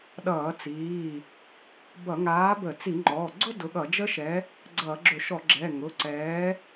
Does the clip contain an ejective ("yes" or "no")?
no